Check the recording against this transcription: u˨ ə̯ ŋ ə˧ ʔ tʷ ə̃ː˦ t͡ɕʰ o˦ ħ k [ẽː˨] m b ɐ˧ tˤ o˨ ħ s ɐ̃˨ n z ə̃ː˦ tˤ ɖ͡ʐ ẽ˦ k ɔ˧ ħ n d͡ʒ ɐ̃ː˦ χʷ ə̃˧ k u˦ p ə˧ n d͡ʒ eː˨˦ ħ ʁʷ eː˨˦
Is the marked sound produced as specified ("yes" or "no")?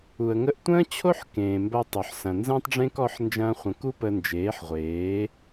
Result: yes